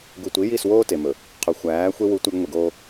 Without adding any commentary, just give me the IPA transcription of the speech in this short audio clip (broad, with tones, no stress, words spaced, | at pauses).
ɡu˨tʷi˨˦ji˦˨swoː˦ te˨mɵ˨ | qʰɵ˨xʷæː˨˦xʷe˦ wu˦ tʷæ˦ɡŋʷi˨ɡoː˦